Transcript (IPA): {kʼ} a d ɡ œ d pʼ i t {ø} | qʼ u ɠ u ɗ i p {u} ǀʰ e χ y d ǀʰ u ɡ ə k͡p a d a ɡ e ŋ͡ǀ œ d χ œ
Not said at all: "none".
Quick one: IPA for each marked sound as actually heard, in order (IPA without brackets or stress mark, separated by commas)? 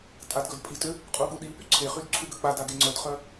tʼ, ø, y